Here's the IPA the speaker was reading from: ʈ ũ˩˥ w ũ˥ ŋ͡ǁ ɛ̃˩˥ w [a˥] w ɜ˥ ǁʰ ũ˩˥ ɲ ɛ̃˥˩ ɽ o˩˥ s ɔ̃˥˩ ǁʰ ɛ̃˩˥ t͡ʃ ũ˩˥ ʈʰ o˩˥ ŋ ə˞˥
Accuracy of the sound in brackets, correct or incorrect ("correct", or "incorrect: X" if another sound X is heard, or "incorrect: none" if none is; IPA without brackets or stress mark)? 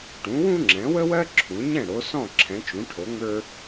incorrect: ə˥